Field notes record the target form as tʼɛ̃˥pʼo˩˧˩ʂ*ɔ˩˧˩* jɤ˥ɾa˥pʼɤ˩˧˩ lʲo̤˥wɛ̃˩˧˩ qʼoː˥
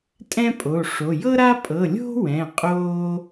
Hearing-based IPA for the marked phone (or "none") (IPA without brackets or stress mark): o˩˧˩